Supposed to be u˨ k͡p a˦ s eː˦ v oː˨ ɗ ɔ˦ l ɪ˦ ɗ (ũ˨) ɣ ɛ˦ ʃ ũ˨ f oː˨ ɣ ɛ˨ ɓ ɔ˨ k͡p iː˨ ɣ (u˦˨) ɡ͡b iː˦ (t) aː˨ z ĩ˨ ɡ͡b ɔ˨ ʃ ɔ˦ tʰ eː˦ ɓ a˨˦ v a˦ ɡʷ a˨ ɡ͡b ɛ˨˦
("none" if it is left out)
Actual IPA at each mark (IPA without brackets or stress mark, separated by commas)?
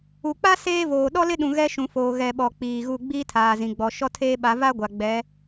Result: ũ˨, u˦˨, tʰ